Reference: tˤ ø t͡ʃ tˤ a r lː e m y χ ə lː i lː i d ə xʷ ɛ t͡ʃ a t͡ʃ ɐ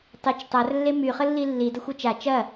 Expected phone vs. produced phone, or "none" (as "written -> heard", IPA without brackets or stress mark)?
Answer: ø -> ə